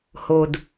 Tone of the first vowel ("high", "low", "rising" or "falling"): low